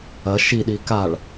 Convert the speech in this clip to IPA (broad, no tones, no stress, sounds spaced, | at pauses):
ɐ ʃ i ɗ i k a ɭ